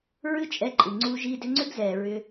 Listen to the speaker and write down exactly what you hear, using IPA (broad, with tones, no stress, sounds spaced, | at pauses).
ɹ ɨ˦ t͡ʃʼ ɛ˧ ǃʼ ɨ˨ ŋ͡ǀ u˧ ʒ iː˧ d ʏ˧ ŋ͡ǀ ʏ˦ ɡ z ɛː˨ ɹ ʏː˧